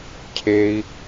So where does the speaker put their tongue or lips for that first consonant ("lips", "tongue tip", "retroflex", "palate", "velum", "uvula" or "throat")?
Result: palate